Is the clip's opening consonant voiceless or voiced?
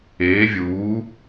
voiced